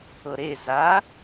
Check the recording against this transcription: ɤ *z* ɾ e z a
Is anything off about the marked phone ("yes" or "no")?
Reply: yes